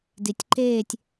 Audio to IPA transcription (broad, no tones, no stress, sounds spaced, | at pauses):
d i tʲ ǃ eː tʲ